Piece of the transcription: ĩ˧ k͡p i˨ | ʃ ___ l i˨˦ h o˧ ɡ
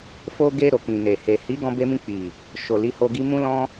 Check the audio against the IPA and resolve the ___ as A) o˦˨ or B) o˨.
B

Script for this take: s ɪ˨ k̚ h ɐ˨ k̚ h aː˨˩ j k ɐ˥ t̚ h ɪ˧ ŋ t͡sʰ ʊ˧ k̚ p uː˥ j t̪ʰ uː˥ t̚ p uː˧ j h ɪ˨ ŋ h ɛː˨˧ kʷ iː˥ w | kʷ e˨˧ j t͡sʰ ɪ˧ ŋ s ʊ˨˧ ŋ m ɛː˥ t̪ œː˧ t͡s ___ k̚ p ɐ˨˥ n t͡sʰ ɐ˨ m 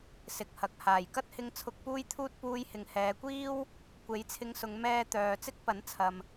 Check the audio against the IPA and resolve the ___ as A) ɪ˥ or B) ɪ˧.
A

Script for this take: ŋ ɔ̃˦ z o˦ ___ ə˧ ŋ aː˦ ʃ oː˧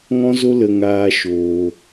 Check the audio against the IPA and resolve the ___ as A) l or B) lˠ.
A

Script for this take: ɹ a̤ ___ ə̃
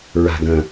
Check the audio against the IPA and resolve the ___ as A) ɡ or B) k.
A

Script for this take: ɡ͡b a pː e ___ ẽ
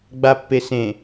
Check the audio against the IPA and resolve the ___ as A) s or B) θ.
A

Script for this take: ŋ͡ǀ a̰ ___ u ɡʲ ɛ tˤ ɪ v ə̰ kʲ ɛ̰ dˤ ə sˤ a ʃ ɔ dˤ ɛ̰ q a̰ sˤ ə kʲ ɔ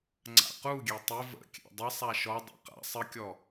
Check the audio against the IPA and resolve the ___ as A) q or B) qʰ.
A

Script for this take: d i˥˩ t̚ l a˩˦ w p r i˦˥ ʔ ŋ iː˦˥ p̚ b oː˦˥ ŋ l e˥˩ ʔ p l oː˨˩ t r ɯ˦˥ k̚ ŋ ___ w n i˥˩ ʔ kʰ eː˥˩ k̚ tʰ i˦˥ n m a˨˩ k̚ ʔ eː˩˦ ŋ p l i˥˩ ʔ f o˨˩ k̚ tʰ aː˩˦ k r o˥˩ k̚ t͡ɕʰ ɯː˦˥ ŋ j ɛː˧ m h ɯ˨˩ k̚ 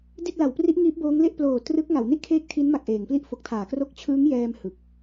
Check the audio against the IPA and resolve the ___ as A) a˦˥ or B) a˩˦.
B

